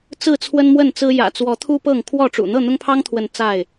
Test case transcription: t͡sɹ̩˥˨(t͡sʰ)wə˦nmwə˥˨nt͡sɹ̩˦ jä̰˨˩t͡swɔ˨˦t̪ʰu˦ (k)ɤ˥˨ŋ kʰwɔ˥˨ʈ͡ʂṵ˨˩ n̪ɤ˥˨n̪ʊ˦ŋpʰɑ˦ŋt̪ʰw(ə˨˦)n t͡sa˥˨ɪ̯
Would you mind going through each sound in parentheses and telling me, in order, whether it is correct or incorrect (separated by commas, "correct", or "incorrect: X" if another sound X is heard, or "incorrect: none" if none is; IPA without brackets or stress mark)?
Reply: correct, incorrect: p, correct